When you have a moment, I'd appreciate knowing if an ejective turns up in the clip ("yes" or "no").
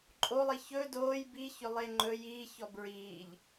yes